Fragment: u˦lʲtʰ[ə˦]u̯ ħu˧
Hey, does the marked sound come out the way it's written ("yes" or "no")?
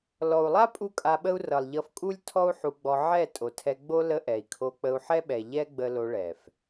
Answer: no